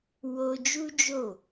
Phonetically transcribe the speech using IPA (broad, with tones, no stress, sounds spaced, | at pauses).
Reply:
w o˧ d͡ʒ u˦ d͡ʒ o˦˨